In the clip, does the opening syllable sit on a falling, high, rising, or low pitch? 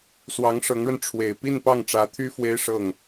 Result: rising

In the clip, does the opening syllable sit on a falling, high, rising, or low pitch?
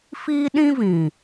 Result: high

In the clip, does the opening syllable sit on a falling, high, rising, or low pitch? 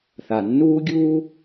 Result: low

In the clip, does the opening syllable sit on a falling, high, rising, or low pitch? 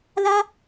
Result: high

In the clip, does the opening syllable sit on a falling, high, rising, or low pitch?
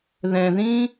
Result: low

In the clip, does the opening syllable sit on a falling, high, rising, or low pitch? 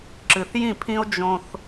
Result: low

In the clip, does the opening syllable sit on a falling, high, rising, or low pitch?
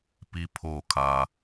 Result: high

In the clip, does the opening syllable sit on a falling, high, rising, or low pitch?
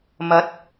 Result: rising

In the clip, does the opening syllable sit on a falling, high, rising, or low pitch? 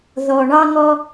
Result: low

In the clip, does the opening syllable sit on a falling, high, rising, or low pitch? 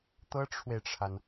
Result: high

